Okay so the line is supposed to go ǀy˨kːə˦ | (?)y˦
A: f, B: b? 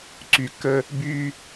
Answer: B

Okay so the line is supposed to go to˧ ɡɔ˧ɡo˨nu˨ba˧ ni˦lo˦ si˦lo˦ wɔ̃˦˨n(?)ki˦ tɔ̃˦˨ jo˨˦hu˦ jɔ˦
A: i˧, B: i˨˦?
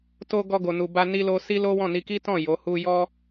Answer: A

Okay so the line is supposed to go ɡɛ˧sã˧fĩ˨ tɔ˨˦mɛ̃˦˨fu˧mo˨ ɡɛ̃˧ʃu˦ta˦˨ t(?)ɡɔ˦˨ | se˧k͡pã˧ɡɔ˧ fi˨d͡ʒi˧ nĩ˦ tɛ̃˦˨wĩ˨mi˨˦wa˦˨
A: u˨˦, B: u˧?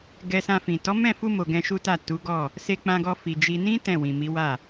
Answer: A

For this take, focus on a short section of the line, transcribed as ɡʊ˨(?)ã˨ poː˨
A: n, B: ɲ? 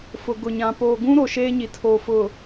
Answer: B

